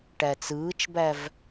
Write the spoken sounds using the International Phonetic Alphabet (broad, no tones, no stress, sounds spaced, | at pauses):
ʈ æ t͡s ɯː t͡ʃ b æ v